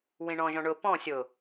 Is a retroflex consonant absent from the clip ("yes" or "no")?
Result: no